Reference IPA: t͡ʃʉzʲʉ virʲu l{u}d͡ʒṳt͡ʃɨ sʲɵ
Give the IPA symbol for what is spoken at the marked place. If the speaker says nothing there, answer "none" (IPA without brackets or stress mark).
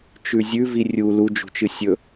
u